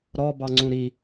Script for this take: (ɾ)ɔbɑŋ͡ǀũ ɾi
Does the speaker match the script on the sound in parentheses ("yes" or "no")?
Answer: yes